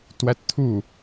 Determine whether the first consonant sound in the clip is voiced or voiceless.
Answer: voiceless